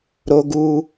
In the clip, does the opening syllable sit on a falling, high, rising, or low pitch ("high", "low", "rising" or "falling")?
high